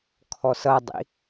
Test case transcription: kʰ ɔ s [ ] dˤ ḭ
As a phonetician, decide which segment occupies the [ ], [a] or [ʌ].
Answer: ʌ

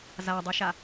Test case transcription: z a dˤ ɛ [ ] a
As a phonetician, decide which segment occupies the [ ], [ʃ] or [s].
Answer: ʃ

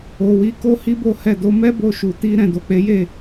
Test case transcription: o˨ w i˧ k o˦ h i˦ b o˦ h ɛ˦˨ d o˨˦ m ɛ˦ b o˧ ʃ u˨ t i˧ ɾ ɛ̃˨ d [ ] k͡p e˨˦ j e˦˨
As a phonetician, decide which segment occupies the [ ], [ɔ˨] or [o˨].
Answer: o˨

